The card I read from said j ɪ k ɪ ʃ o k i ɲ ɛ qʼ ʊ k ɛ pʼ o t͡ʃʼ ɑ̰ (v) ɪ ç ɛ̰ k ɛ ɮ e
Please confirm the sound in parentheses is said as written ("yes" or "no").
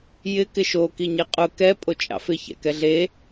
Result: no